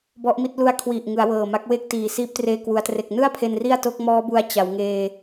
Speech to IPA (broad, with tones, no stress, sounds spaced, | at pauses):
b ɔ˦˥ ʔ m i˥˩ t̚ l u˦˥ a̯ kʰ w i˨˩ ʔ ŋ ɯ˩˦ a̯ w ɤː˨˩ m a˦˥ k̚ w e˥˩ k̚ t iː˨˩ s iː˦˥ p̚ t r eː˧ k w u˩˦ a̯ t r e˨˩ k̚ n ɯ˥˩ a̯ pʰ e˧ n r i˥˩ a̯ t o˦˥ k̚ m ɔː˦˥ b u˧ a̯ t͡ɕ a˩˦ w ŋ eː˧